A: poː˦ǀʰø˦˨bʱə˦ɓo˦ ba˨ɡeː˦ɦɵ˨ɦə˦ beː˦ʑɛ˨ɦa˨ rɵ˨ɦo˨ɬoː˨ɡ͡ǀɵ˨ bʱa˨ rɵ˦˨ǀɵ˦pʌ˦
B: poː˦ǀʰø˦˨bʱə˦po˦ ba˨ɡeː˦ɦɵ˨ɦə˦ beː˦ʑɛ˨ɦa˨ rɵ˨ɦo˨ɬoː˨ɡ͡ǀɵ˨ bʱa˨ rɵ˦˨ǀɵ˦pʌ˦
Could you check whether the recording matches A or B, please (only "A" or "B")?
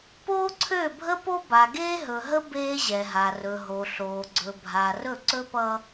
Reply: B